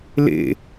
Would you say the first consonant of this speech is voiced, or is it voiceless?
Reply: voiced